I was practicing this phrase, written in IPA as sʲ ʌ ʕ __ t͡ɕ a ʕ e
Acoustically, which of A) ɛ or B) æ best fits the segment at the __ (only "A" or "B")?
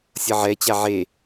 A